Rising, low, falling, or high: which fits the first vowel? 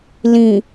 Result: low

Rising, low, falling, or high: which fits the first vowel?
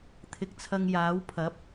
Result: low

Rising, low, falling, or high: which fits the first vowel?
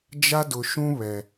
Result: high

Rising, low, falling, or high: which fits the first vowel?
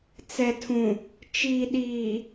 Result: low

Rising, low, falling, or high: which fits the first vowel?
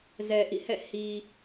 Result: low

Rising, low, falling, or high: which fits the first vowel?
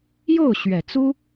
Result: falling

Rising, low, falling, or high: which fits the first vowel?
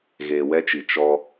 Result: low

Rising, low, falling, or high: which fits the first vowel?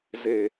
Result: low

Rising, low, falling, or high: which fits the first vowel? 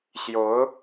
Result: rising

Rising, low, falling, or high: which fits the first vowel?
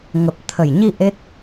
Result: low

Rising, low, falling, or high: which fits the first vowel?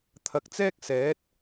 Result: low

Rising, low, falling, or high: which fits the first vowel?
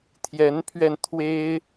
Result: rising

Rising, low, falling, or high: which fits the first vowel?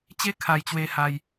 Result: high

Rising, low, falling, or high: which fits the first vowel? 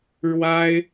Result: high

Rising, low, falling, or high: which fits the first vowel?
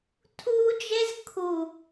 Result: high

